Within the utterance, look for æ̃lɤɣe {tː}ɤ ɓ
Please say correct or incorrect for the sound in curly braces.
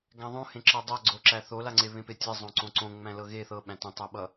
incorrect